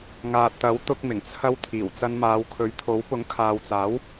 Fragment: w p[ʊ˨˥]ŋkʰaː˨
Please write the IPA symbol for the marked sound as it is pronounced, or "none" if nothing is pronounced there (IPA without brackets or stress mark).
ʊ˨˥